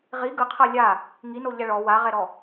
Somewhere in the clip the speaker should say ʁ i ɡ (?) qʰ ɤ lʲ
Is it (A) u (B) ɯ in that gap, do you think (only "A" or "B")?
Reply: B